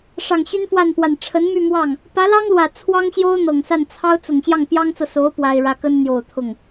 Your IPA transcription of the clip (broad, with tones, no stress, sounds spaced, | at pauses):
ʂ ɑ˨˩ ŋ ɕ y˥ n f w a˥˩ n p w a˨˩ n ʈ͡ʂʰ ə˧˥ n m y˥˧ m w ɑ˥˩ ŋ | p ä˧˥ l ɑ˥ ŋ l w ä˨˩ t͡sʰ w ɑ˥ ŋ ɕ j o˥ ʊ̯ n̪ ɤ˨˩ ŋ s a˥˩ n t͡sʰ ɑ˥ ʊ̯ t͡s ʊ˨˩ ŋ ɕ j ɑ˥˩ ŋ p j ɑ˥ ŋ t͡s ɤ˨ s o˧˥ ʊ̯ p w a˥ ɪ̯ ɻ ä˥ k ə˥ n n̪ j o˨˩ ʊ̯ t̪ʰ ʊ˥˩ ŋ